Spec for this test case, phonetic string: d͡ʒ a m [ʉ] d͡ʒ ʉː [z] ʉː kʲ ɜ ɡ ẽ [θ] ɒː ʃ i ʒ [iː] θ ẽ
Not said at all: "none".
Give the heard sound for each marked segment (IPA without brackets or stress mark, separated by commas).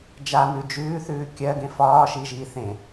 ʉ, θ, f, iː